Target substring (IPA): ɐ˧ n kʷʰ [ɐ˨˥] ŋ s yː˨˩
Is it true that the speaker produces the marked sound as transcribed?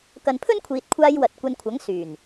yes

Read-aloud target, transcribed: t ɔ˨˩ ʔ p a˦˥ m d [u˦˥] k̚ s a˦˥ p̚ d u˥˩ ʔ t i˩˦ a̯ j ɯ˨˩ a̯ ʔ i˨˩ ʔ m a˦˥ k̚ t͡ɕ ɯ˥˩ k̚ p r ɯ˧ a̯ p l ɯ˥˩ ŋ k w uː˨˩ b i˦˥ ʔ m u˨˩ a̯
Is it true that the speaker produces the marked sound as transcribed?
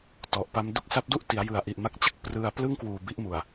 yes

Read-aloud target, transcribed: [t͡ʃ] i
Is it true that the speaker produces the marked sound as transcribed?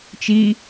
yes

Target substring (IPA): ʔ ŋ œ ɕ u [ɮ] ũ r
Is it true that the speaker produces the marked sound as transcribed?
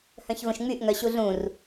yes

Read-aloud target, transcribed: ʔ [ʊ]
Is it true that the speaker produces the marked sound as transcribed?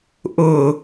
yes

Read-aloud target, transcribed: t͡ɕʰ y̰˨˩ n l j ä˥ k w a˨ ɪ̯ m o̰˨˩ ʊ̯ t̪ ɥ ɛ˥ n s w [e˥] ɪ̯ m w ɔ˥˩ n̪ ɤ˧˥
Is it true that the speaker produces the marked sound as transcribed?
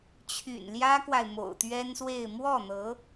no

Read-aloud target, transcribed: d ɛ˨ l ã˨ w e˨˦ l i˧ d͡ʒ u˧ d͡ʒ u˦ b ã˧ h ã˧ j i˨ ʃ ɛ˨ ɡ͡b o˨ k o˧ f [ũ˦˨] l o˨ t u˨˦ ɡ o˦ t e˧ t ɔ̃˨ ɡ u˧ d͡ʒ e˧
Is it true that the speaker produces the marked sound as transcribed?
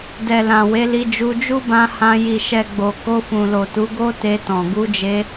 no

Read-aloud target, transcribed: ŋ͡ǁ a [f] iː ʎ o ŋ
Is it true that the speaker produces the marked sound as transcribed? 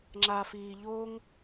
yes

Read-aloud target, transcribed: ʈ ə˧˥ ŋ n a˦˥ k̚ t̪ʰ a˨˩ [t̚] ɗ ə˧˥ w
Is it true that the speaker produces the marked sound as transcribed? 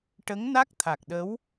no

